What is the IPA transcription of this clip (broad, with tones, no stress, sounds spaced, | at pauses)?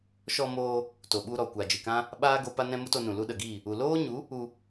ʃ ɔ˧ m oː˧ | t o˨ ɓ u˧ ɾ ɔ˨ kʷ a˨ d͡ʒ ɨ˨ k ã˦ | ɓ aː˦ ɡ o˧ p a˧ n ɛ̃˧ m u˦ t o˧ n ũ˨ l u˧ ɗ ə˨ ɡ iː˦˨ | u˨ l oː˦ ɲ u˨˦ | u˧